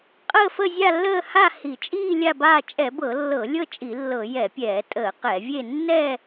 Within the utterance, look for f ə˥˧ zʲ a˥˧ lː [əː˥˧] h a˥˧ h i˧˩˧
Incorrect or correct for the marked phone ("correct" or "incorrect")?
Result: correct